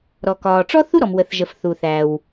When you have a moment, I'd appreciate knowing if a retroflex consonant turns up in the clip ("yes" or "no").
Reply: yes